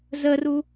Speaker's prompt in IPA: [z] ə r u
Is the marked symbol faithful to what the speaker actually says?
yes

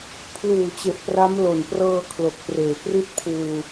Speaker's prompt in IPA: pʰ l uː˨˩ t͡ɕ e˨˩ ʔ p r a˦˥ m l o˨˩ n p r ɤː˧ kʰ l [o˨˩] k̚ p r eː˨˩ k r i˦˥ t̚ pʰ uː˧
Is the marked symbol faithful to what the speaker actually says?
yes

